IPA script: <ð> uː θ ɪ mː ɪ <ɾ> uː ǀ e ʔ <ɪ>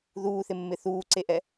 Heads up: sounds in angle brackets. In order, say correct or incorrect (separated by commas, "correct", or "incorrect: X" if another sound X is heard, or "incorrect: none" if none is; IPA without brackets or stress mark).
correct, incorrect: θ, incorrect: ɛ